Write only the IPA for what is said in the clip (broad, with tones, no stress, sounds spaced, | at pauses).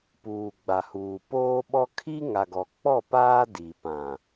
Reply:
p uː˨ ɡ͡b a˨ h uː˨ p oː˦ ɓ ɔ˦ kʰ i˦ ŋ a˨ ɡ ɔ˨ k͡p ɔ˦˨ p aː˦ d i˨ p ã˨